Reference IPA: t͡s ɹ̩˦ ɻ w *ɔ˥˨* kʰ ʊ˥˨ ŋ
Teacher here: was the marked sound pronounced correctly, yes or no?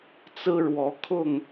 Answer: no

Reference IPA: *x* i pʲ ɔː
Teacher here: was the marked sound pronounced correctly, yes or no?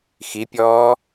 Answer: yes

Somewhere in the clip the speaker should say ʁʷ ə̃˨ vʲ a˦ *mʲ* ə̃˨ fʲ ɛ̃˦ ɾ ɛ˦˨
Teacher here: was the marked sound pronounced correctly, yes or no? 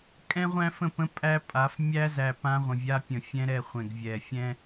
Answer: no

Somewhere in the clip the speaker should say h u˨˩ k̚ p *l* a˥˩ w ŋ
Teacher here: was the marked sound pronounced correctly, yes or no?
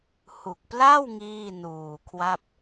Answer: yes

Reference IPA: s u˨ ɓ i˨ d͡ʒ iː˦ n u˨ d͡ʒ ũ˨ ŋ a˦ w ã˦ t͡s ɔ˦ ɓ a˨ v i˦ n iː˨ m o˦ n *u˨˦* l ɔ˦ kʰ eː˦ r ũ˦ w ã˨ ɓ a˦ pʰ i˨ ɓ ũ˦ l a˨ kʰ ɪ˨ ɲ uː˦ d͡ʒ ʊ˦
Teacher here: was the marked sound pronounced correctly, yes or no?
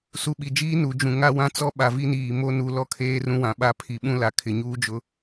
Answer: yes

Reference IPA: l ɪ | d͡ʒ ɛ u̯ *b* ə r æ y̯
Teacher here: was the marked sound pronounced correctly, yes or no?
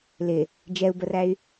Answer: yes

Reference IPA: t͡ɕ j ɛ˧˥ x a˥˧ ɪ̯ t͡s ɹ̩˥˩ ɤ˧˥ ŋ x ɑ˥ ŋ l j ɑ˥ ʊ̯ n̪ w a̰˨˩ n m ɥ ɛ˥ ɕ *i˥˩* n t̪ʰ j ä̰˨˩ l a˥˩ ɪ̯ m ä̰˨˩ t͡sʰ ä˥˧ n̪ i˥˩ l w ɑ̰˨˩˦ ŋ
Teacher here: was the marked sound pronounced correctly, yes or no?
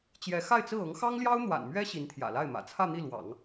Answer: no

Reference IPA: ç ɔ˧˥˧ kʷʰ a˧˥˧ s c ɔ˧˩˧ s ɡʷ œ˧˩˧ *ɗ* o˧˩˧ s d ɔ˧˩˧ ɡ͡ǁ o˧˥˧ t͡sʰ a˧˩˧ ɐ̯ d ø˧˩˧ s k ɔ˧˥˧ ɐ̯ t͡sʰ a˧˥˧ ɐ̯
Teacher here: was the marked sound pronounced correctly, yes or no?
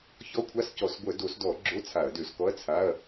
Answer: no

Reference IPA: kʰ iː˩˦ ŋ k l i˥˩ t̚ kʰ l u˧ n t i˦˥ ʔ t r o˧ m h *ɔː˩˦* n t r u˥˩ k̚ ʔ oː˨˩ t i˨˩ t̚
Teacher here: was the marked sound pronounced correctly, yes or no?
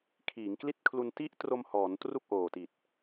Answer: yes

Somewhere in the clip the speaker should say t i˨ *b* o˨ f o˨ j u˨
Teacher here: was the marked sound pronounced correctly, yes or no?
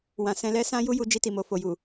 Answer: no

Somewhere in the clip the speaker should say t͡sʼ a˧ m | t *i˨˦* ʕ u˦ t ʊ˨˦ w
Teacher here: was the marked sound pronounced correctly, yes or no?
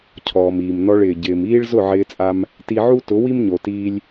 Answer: no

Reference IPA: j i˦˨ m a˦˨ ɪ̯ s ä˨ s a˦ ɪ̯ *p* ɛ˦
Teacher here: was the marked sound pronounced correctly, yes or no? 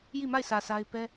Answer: yes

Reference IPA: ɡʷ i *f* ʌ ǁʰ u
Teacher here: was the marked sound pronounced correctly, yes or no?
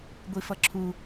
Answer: yes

